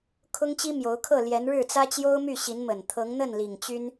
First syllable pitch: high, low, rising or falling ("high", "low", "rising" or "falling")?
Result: high